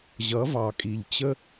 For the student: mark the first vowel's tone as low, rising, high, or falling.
rising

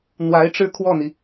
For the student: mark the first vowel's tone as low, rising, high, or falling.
rising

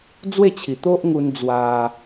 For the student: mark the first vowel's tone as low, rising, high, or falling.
falling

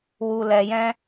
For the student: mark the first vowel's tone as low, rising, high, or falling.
low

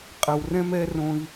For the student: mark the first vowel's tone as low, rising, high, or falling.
low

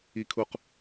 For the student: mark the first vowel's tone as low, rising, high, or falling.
high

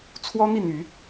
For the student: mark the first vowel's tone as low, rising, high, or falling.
high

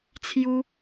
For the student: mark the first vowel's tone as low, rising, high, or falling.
high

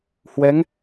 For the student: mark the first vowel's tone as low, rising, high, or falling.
rising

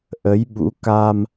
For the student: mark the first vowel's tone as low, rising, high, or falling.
rising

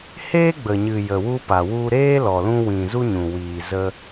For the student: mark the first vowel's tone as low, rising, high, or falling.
high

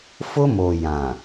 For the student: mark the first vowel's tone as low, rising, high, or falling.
high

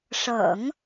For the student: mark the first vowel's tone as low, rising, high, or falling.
low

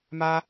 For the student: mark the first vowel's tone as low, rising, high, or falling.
high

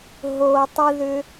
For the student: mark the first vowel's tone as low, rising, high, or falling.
low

